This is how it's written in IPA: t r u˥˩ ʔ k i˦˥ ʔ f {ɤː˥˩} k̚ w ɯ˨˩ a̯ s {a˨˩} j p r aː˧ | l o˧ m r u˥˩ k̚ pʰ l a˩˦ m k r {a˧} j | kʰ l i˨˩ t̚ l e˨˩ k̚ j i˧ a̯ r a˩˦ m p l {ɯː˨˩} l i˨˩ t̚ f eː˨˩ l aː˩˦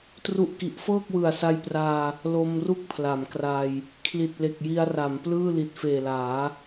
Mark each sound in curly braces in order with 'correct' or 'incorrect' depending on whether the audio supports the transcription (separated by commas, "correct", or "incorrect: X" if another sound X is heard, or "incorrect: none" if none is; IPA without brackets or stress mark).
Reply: correct, incorrect: a˧, correct, incorrect: ɯː˥˩